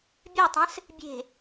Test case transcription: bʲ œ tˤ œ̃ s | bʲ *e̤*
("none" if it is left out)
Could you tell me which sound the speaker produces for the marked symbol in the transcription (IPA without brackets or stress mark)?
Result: e̤